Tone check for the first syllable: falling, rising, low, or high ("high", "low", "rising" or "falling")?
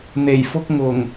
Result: low